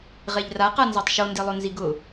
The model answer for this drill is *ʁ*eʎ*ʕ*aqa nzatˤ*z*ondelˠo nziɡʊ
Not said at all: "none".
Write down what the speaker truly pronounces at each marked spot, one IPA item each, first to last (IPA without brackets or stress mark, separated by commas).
ʁ, r, ʃ